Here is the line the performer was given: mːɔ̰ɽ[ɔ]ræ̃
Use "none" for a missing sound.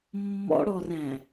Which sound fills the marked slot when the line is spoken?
ɔ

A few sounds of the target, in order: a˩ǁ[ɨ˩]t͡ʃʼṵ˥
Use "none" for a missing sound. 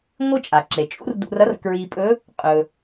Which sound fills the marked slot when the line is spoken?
e˩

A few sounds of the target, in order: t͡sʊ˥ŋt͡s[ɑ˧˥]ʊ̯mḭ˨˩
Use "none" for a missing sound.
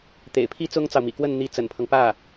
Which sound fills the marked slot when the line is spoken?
ɑ˨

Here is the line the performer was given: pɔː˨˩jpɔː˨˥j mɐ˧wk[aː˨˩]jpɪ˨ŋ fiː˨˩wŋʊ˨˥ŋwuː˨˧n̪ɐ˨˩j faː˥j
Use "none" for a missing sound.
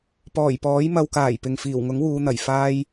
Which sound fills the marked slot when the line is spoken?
aː˨˩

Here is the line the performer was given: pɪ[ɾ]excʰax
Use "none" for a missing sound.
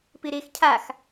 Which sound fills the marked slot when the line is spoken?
ɾ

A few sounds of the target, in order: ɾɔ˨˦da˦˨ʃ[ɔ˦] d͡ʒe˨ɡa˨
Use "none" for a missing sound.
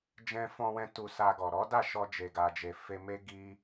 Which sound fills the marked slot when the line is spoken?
ɔ˧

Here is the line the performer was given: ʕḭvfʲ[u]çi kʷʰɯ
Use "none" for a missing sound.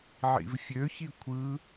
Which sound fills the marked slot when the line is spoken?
ø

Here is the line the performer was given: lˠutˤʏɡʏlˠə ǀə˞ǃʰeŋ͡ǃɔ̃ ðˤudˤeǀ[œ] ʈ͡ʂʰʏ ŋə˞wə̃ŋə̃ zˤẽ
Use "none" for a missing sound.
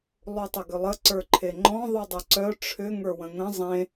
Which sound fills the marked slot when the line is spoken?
œ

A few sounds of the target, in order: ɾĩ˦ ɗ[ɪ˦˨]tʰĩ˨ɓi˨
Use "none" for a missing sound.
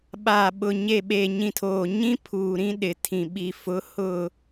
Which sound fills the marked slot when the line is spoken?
ɪ˨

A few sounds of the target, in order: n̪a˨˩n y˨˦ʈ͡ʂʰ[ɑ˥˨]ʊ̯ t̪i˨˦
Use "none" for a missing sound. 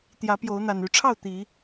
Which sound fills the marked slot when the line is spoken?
ɑ˥˨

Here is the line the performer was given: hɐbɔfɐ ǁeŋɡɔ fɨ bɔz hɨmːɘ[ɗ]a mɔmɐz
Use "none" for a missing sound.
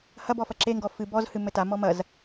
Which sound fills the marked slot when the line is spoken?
t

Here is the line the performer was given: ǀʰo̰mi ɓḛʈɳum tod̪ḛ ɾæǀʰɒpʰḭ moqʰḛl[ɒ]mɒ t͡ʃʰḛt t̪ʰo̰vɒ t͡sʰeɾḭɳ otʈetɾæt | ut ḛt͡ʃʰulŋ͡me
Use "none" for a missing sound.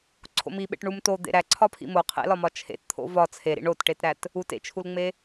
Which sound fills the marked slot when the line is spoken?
ɒ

